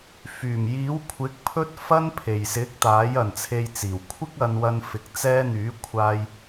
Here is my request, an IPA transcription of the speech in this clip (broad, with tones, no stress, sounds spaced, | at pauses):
f yː˨˩ m j iː˨˥ w kʷʰ ɪ˨˥ k̚ pʰ ɵ˥ t̚ f ɐ˥ n pʰ e˨ j s ɪ˨˥ k̚ t̪ aː˨˥ j ɐ˨ n t͡sʰ e˧ j t͡s iː˨˩ w kʷʰ ɪ˥ k̚ ɐ˧ n w ɐ˧ n f ɪ˨˥ k̚ t͡s ɛː˧ n̪ yː˨˥ kʷʰ aː˧ j